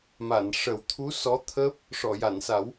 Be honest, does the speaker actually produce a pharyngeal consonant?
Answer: no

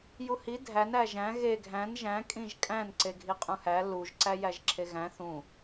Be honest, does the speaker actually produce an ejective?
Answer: yes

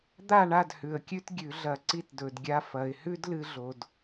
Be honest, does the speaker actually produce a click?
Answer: yes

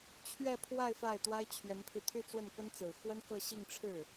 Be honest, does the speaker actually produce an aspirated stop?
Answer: yes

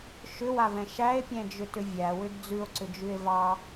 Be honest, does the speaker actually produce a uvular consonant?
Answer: no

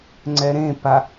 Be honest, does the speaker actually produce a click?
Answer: yes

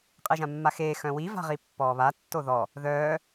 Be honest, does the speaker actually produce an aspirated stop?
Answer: no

